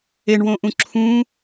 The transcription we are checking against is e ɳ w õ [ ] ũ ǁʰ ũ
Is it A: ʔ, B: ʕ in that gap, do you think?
A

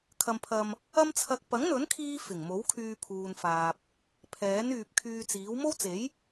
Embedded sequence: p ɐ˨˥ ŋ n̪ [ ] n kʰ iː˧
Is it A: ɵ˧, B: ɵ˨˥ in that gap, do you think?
B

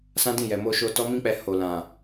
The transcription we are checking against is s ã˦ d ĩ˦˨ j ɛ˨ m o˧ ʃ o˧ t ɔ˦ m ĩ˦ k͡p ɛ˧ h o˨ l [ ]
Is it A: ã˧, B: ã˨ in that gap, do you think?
B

